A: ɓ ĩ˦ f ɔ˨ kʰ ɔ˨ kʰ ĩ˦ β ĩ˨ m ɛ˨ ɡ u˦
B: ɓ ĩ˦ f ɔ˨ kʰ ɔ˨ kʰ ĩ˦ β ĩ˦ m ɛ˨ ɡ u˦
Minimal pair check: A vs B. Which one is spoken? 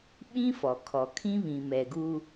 A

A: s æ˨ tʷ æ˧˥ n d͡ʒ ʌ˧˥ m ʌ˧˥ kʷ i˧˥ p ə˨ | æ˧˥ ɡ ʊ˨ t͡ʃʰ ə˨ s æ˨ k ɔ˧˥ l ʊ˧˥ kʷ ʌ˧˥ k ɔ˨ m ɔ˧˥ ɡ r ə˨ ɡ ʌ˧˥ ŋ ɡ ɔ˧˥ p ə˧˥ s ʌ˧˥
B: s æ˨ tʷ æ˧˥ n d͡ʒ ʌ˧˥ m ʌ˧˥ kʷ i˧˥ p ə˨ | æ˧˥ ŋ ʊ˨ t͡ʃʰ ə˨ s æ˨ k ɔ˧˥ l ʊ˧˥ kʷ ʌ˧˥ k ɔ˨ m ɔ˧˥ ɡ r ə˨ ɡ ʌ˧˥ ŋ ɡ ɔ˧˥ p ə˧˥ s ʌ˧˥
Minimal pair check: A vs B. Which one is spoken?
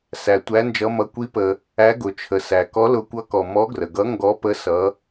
A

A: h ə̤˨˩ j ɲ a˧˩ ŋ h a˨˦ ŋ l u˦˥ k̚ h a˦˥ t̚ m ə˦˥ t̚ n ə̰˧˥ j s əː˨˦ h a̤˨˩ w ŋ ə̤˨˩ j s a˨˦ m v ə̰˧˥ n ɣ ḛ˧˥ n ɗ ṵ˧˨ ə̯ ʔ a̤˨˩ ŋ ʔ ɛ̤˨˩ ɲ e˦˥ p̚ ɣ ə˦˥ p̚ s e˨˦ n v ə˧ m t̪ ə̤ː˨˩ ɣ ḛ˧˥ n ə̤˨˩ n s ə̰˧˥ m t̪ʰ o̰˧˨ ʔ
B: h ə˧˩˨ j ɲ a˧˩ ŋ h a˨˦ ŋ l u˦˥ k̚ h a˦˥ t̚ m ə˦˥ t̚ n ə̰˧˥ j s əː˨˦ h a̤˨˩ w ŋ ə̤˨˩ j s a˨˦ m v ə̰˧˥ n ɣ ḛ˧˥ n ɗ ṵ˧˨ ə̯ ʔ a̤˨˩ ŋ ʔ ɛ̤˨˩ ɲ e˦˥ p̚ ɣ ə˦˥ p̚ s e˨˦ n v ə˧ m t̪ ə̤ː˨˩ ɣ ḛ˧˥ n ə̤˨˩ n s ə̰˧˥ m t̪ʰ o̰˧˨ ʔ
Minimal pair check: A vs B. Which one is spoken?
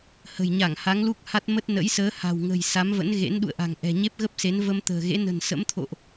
A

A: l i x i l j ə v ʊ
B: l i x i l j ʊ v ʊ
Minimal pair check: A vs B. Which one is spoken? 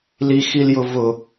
B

